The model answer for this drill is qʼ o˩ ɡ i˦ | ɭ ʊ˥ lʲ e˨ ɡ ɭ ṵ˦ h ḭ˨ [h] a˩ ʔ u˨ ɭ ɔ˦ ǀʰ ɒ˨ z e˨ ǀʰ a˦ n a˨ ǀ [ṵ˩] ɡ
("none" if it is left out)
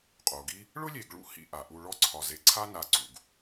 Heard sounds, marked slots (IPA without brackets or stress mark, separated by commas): ʔ, ṵ˩